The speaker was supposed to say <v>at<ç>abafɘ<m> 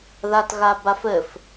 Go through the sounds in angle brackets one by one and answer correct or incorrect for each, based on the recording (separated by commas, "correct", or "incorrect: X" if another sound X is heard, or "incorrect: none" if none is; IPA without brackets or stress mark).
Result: incorrect: ð, incorrect: ɣ, incorrect: f